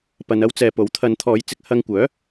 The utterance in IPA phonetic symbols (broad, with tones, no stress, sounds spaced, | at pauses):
p ɐ˧ n ɐ˥ w t͡s ɛː˨˧ p o˨˥ w t̪ʰ ɐ˨˧ n t̪ʰ ɔː˨˧ j t͡s ɪ˧ k̚ h ɐ˧ ŋ kʷ œː˨˥